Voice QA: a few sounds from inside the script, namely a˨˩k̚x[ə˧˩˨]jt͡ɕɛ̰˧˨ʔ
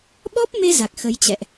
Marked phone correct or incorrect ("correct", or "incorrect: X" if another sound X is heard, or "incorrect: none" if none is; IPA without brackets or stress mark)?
incorrect: ə˨˦